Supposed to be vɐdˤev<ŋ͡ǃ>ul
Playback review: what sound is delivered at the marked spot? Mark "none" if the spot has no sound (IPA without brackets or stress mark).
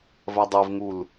ŋ